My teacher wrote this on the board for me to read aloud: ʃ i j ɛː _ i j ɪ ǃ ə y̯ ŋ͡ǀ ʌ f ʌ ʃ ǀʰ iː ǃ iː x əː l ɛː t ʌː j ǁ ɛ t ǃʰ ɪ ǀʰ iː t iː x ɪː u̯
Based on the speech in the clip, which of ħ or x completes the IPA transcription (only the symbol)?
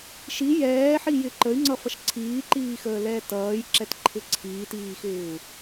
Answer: ħ